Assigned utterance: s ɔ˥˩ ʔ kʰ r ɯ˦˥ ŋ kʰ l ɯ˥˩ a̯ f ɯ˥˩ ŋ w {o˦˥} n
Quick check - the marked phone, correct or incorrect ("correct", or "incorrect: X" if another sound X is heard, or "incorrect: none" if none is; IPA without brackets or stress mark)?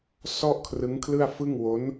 correct